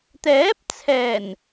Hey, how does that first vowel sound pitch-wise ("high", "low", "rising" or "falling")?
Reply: rising